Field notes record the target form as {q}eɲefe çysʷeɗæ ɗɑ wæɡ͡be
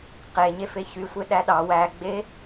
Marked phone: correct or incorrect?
correct